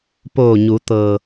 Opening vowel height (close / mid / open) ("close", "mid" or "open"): mid